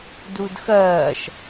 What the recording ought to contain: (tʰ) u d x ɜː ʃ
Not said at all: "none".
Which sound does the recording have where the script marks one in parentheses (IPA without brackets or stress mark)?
d